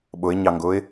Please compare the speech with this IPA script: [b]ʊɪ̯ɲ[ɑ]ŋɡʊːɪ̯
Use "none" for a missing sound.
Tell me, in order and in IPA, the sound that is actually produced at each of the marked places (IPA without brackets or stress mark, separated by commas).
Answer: ɓ, ɑ